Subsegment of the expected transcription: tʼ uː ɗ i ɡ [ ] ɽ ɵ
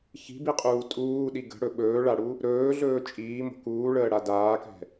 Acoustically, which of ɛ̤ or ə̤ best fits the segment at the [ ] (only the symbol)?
ə̤